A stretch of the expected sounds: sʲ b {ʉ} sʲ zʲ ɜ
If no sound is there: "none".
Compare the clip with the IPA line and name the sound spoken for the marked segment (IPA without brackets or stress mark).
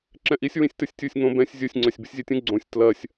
ɨ